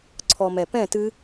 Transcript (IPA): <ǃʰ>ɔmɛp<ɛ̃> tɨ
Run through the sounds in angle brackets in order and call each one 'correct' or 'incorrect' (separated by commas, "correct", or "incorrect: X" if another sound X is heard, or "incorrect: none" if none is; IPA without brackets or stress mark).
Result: incorrect: ǀʰ, correct